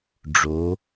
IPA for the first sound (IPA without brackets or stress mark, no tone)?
ɖ͡ʐ